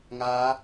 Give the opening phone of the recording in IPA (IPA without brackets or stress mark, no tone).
ŋ